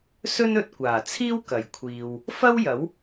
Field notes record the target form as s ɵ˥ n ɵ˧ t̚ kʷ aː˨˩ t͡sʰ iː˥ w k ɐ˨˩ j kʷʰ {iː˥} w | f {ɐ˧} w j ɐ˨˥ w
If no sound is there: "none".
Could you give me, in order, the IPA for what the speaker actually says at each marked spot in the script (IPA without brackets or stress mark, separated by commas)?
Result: iː˨, ɐ˥